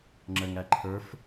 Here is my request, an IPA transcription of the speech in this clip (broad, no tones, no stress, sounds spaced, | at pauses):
ŋ͡ǁ ə ŋ æ ǃʰ ə˞ f